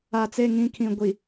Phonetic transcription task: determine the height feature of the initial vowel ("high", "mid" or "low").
low